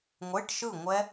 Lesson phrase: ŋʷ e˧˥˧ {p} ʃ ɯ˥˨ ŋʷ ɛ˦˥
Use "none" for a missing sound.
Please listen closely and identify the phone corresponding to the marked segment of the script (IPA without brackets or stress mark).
ʈ